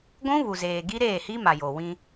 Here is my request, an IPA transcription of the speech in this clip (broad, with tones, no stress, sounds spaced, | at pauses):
ɡʷ ũ˦ β u˨ z eː˨ ɡ i˦ ɾ eː˦˨ h i˦ m a˨ j o˨ w ĩ˦